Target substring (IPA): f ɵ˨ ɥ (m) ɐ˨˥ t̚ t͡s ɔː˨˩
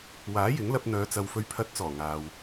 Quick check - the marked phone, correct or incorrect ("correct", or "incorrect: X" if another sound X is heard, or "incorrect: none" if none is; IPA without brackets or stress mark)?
incorrect: pʰ